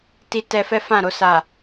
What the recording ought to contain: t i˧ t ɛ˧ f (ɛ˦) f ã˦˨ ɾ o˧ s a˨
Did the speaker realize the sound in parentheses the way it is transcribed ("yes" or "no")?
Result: yes